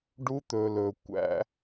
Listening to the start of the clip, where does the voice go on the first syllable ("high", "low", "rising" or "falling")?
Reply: high